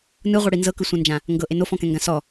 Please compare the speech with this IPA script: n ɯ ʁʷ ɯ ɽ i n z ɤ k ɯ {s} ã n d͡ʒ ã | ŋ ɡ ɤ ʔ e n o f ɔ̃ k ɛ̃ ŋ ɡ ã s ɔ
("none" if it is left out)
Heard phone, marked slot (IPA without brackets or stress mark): sʷ